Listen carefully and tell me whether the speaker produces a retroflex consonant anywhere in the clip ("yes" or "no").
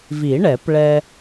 yes